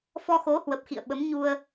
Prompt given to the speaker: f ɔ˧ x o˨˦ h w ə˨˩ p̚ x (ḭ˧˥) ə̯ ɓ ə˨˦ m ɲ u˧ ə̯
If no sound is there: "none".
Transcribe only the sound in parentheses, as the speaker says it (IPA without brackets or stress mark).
ḭ˧˨